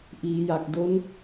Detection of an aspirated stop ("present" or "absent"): absent